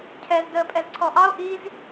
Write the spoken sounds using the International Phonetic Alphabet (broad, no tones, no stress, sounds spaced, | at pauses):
cʰ ɛ z d əː pʼ ɛ z ǀʰ ɔ ʔ ɑ o̯ ʔ i z